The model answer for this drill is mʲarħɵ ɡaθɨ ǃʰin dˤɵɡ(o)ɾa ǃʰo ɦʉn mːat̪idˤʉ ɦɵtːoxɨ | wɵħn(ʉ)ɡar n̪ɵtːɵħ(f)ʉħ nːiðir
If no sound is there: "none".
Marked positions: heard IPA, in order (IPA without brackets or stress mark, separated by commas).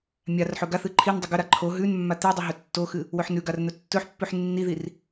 ɵ, ʉ, pː